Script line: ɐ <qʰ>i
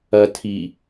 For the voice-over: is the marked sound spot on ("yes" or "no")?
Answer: no